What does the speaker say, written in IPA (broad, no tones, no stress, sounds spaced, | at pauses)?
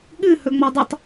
ɠ ɨ h ɵ ŋ͡m ɔ dˤ ɪ tˤ